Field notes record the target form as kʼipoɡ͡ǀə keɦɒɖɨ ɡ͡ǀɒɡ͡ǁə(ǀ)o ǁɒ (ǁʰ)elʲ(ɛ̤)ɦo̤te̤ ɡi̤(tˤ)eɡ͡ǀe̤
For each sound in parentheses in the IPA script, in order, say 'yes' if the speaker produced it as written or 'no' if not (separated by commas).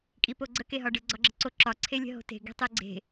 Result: yes, no, no, yes